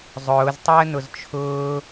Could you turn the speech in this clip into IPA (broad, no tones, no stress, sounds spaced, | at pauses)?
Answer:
zˤ ʊː z tˤ əː n ʊ z t͡ʃʰ ʊː